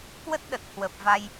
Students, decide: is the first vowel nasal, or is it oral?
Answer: oral